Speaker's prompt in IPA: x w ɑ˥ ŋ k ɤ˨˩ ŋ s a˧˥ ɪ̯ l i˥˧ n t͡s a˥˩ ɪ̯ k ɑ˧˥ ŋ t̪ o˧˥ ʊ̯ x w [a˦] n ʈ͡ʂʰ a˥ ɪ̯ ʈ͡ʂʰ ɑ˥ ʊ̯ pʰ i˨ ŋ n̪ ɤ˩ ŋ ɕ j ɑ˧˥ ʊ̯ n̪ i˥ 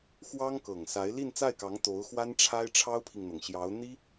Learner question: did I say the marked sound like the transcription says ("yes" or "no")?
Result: no